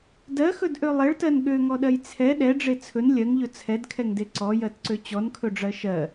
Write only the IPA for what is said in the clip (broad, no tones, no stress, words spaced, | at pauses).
dɜxɵdʔø lˠeɭtɜn ɠøŋɔɗɜj t͡sʰɛ ɗɛɖ͡ʐe t͡sʰɵn lʲɜŋʎɵ t͡sʰɛdkʰɛŋde ǀɔjɜtǀø t͡ɕɔnkʰɵɖ͡ʐɜ ʃɜ